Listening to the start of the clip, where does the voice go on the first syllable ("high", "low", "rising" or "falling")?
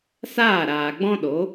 falling